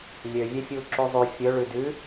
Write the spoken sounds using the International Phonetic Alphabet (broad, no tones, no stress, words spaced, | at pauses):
lʲøvʲɛfʲu ǁuzˤy fʲɵɭʉ dʉ